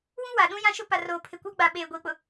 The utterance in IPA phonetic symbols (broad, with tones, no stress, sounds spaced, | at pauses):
w ũ˦ w a˨ ɗ ũ˦ j ã˦ ʃ ʊ˦ p a˨ r oː˨ pʰ ɪ˨ kʷ a˦ ɡ͡b a˨ ɓ eː˨ ɡʷ iː˨ k͡p ʊ˨